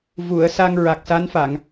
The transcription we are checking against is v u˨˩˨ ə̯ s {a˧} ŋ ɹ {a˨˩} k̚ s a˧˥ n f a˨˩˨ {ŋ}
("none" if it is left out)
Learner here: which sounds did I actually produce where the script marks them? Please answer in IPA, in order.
a˧, a˨˩, ŋ

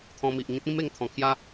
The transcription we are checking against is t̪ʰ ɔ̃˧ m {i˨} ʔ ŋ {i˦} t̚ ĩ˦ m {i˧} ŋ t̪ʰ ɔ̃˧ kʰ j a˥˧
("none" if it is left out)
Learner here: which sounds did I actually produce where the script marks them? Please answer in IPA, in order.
i˨, ĩ˦, e˧

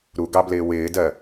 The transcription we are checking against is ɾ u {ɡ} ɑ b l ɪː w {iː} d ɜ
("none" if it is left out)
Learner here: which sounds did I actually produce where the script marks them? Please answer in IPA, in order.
ɡ, ɪː

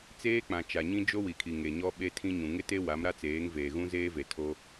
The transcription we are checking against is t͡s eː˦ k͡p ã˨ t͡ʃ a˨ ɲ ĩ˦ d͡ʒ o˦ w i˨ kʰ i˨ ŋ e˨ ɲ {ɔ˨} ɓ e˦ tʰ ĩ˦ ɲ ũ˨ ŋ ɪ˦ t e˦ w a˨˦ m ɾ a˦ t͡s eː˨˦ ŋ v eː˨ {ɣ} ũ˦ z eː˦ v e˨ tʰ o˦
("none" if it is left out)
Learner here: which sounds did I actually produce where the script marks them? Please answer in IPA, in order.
ɔ˦, ɣ

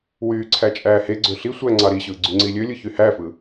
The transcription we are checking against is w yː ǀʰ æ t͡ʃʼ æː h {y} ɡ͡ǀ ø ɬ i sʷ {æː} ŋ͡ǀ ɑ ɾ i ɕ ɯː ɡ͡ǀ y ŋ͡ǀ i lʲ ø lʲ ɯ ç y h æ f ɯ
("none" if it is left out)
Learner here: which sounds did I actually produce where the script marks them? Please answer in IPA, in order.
e, æ

